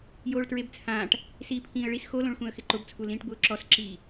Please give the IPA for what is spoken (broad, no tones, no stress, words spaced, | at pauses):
joːɭtɹebt͡sʰãːʈ | siːpʰĩːə̯ɭis xolõɭxũə̯ xɪǃʊbt͡sʰu lĩːʈbʊːǁɔsǁiː